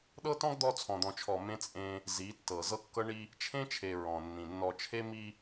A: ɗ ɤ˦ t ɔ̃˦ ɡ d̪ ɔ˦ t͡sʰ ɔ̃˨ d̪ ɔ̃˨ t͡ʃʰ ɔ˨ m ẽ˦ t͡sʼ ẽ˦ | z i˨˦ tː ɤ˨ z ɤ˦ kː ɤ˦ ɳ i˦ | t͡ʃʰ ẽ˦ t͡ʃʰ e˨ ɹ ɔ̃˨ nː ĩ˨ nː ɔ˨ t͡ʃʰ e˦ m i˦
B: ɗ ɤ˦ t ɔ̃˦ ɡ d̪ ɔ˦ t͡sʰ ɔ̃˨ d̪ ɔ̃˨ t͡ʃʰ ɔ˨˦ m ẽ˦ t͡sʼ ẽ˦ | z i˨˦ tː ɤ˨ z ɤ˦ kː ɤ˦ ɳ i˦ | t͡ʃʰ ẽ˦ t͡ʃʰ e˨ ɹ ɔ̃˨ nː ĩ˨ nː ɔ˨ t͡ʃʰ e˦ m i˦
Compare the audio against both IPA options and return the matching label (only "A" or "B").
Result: A